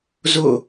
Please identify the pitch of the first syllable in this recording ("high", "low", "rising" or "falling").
falling